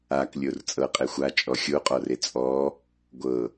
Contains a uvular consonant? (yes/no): yes